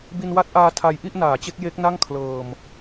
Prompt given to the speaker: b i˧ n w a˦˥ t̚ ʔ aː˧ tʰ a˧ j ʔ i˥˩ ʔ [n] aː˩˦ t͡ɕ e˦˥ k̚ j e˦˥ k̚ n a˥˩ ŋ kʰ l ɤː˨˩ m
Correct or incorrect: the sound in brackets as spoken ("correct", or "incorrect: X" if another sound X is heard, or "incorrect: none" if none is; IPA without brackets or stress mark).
correct